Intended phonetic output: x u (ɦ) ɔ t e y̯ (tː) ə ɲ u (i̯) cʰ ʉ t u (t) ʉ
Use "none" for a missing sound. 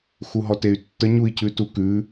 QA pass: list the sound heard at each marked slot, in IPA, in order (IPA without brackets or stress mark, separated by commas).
ɦ, tː, i̯, k